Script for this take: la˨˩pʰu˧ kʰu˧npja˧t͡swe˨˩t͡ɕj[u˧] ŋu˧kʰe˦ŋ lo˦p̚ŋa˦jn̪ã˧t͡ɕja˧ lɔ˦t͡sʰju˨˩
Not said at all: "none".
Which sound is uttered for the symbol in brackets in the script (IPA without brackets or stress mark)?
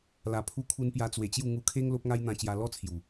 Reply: u˥˧